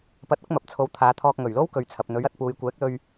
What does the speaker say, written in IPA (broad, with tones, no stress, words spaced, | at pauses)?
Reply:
pɐ˧t̚ʊ˥k̚mɐ˨p̚t͡sʰo˨˥w t̪ʰaː˨˧t̪ʰɔː˧k̚ ŋɵ˨˩ɥlo˥w kɵ˨ɥt͡sʰɐ˨p̚n̪ɵ˨˥ɥɐ˧t̚ puː˨jkʷɛː˨˥k̚lɵ˧ɥ